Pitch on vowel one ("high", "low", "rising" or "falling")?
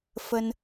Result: high